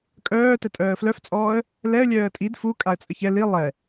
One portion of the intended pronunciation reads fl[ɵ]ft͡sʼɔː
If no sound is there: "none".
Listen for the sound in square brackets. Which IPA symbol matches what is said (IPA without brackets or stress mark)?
œ